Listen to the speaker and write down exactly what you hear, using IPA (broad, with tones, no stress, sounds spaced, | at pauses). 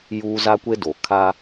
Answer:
j u˦ z a˦ kʷ e˦ d o˨ kʰ a˦